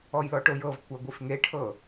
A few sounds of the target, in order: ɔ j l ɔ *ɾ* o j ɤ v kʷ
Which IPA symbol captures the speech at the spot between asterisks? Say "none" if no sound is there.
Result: ʈ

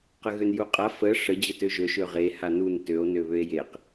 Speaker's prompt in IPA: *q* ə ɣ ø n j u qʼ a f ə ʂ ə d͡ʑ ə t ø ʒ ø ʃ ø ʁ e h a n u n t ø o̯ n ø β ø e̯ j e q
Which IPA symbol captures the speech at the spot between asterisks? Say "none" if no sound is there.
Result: q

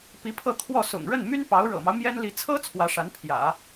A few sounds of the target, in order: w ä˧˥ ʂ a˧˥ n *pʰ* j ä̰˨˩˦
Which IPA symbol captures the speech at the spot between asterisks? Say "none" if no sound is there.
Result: pʰ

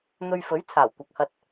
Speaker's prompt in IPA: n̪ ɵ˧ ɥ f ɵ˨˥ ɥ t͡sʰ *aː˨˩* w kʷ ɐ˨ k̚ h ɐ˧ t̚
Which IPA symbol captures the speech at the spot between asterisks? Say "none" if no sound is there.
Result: aː˨˩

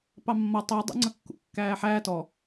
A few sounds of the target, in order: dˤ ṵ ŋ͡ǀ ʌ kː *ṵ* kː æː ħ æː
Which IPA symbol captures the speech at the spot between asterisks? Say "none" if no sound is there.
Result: ṵ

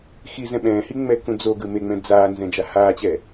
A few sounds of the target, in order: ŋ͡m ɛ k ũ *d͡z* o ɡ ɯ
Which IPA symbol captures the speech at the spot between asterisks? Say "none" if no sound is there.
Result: d͡z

